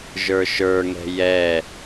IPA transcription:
ʒə˞ʃə˞ŋɛ̤ jɛ

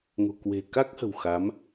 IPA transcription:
ŋo̤˨˩kwe̤˨˩ka˦˥k̚hə̤˨˩w xa˨˦m

